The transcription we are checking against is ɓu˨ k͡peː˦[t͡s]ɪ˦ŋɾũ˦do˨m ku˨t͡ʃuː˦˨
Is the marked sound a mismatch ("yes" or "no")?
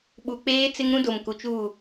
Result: no